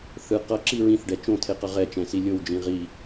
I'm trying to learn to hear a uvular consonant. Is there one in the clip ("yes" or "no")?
yes